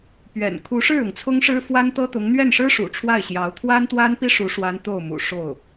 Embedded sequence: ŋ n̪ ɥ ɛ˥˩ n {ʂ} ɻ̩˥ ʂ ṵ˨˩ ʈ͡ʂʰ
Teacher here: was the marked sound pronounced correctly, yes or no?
yes